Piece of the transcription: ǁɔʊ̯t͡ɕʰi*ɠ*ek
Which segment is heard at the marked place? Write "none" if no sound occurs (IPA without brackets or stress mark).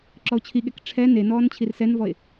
ɠ